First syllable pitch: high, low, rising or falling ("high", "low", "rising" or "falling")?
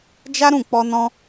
high